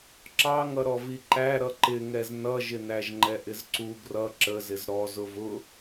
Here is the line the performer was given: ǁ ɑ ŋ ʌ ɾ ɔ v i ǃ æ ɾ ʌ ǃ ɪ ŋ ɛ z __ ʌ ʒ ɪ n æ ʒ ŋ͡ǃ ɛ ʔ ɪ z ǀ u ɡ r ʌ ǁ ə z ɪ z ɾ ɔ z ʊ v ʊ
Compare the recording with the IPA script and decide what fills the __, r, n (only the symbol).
n